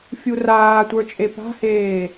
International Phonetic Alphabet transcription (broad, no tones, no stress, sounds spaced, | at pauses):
fʲ u r aː tʷ ə˞ t͡ʃʼ e p a̤ h eː